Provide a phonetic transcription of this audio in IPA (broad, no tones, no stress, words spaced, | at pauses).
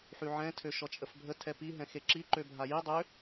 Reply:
ħyʕɛ̃ tʰøʃɔt͡ʃʼəfbʱə tʰɛpi ɦɛ̃xeǁi ǃøbʱaji dˤø